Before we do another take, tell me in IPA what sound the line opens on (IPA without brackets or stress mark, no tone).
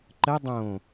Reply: ǃ